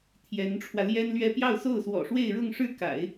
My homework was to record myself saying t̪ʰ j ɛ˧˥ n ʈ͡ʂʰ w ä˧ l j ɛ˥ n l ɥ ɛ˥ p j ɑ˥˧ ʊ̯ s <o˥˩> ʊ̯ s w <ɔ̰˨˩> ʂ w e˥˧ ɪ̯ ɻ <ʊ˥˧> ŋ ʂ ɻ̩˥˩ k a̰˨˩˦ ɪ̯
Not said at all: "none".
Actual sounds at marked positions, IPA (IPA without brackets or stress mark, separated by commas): o˥˩, ɔ̰˨˩, ʊ˥˧